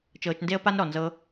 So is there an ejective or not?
no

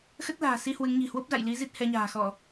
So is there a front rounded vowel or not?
no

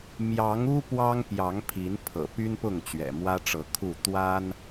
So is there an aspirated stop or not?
yes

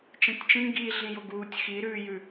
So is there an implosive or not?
no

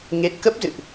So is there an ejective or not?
no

